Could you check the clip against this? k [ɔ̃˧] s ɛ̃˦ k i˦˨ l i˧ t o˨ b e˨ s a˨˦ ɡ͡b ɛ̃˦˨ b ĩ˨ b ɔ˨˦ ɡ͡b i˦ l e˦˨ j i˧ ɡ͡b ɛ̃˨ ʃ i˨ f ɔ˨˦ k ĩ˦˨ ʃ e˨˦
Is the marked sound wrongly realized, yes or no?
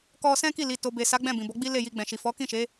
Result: yes